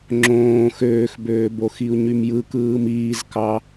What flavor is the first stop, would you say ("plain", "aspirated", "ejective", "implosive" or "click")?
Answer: click